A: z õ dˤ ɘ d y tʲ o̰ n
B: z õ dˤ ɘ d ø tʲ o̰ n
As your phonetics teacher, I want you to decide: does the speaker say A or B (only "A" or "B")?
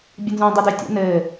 B